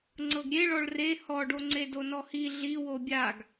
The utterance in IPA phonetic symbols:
ŋ͡ǀɤɡɾʲeɭɔɭ re hɔɖoŋ͡ǀe donɔhi ɮi wobʲaɡ

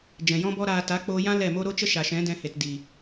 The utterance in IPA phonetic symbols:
d͡ʒɛ̃˨jɔ̃˦bɔ˦ɾaː˧ ta˨˦k͡poː˧jã˦ lɛ˦˨mo˦ ɾo˦t͡ʃə˦ʃa˨ʃɛ̃˨˦ dɛ̃˧he˨t di˨

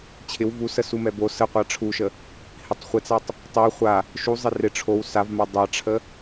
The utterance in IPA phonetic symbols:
t͡ɕʰɪw vusə sumɛbo səqʷa ʈ͡ʂʰuʃə | hɪtˤ χʷɪt͡satˤ | tˤɛ χʷa | ʃu zˤɪrɪ ʈ͡ʂʰow savma dˤaʈ͡ʂʰə

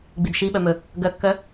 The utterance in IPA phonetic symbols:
ɡ͡bidʃiɓœ mɵ | ɡœkːœ

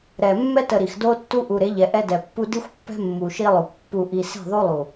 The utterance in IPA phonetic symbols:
ɾɛ˨ mːɛ˦tə˨ ɾi˨xdo˦tːu˦ ʔu˨ɾe˨˦ʎɛ˨ ʔɛ˦dɛ˨pːu˦ di˦xʷpːɛ̤˦ mːu˨ʃi˦lˠo˨kʷ pːu˨ʔi˨se̤˦˨ ðˤu˦lˠu˨

